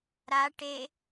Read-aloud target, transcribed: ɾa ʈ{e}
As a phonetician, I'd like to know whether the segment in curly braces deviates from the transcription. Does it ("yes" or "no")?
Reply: no